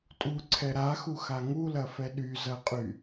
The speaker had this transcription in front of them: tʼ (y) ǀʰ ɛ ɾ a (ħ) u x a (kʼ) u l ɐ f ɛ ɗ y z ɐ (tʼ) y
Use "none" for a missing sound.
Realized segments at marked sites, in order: u, x, ŋ, qʼ

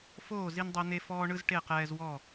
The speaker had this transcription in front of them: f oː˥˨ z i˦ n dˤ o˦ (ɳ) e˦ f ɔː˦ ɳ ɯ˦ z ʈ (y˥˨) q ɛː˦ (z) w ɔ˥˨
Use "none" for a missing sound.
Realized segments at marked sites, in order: n̪, e˥˨, z

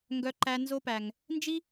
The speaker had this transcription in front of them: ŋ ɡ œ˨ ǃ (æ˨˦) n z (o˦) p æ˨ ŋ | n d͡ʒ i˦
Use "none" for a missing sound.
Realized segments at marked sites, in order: æ˨, o˦

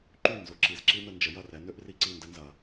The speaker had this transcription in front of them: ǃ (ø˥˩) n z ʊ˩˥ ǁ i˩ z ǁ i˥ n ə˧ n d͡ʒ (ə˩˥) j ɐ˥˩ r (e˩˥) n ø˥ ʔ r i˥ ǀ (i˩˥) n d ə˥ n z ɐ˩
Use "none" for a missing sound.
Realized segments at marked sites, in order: y˥˩, ə˩˥, ɛ˩˥, i˥˩

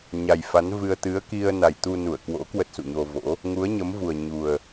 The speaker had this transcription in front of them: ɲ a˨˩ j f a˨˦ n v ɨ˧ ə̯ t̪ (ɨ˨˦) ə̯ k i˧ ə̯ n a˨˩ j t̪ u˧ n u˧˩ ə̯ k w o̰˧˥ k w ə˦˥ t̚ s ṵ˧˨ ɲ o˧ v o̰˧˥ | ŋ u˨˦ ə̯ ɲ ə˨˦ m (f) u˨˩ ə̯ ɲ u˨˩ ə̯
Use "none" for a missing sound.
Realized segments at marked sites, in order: ɨ˨˦, v

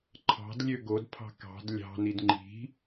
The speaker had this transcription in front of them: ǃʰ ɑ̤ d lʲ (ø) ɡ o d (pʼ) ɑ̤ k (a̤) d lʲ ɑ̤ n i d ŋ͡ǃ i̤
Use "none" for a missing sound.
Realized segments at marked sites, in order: ø, pʰ, ɑ̤

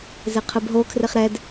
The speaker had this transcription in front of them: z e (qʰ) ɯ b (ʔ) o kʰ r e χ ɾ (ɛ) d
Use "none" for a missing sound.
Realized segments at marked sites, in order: qʰ, ɦ, ɛ

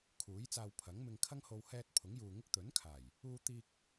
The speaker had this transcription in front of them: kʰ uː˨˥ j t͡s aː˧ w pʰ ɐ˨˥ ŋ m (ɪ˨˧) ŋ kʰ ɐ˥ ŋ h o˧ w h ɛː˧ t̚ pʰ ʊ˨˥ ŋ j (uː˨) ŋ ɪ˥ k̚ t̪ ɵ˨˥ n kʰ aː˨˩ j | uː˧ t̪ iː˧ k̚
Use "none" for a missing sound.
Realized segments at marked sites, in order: ɪ˧, uː˨

